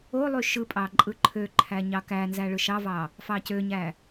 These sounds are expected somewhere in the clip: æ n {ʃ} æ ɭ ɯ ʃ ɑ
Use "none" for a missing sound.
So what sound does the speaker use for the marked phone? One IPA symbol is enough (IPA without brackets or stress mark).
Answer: z